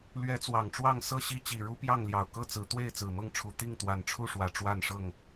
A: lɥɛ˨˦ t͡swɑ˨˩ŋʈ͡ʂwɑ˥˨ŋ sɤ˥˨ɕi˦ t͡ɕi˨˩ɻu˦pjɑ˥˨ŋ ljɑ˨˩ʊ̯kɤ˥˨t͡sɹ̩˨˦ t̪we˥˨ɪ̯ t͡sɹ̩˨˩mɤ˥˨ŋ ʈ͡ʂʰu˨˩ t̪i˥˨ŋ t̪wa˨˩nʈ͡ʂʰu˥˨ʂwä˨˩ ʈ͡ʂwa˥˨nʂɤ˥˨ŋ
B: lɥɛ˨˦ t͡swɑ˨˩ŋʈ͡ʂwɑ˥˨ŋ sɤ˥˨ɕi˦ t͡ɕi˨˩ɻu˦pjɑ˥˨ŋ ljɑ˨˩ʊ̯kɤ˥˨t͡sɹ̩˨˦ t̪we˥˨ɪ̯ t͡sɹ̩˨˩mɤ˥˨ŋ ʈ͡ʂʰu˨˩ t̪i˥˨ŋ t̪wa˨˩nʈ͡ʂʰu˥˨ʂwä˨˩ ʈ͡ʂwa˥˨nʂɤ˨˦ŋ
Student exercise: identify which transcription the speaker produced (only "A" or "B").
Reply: A